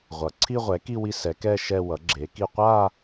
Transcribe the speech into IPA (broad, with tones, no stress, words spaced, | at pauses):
ʁʷʌ˩˥ ǀʰi˥˧ʁʷɛ˩˥ki˥˧ wi˥˧sɛ˩˥ kɛ˥˧ ʃɛ˥˧wʌ˩˥ɡ͡ǁe˩˥ki˥˧ qʷa˥˧